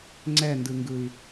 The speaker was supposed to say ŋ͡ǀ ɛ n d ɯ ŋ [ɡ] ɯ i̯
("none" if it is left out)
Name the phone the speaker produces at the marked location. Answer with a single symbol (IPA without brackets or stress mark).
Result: ɡ